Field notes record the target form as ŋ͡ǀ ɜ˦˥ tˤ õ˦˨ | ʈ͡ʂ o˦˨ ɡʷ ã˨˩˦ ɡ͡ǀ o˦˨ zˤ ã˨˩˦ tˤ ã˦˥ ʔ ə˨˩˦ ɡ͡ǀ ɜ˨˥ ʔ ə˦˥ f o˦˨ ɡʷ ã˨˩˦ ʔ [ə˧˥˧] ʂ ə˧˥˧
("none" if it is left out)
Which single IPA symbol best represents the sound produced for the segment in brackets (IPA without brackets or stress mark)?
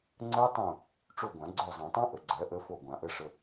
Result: ə˧˥˧